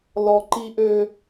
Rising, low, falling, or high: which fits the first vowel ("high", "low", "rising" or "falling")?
high